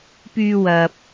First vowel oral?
yes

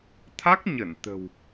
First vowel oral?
yes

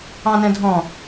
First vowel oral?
no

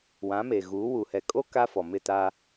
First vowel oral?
no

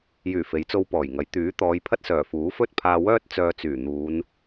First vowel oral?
yes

